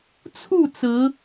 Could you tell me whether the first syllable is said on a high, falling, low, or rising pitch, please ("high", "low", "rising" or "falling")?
falling